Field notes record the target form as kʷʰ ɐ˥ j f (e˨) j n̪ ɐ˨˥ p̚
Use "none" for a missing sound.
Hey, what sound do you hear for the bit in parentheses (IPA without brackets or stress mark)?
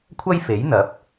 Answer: e˨˥